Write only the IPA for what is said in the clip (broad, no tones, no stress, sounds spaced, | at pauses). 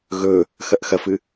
ɣ ɵ | x ɐ ʔ x ɐ f ɨ